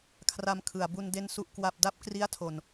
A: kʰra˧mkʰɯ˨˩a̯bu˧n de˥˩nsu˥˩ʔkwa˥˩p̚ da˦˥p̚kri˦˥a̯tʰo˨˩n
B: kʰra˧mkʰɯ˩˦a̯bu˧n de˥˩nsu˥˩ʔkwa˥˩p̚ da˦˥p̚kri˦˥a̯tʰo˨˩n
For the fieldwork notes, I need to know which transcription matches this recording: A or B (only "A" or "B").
A